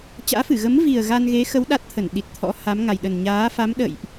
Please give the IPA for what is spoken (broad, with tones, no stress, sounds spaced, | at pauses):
t͡ɕ a̰ː˧˥ f ɨ˧˩ ɣ ə˨˦ m v i˨˩ ə̯ ɣ a˧ n ɣ e˨˦ x ə˨˦ w ɗ a˦˥ t̚ t̪ʰ ə˧˩ n ɗ i˨˩ t̚ t̪ʰ ɔ̰˧˥ h a˨˦ m ŋ a˨˩ j ɗ ə˨˩ n ɲ aː˨˦ f a˨˦ m ɗ ə̰˧˨ j ʔ